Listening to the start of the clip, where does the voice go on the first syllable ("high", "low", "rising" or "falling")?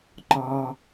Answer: low